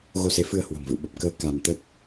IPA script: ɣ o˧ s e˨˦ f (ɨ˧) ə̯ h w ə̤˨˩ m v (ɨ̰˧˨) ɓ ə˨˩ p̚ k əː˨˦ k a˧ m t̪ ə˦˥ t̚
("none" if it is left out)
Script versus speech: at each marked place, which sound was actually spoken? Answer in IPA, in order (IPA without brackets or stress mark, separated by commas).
ɨ˧, ɨ̰˧˨